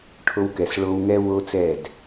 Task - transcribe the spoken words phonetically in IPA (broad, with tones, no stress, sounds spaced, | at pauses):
ʈʰ o˧ w k ɛ˨ s ɭ o˧ w ŋ ɛ˦ w o˦ t͡s ɛ˦˨ d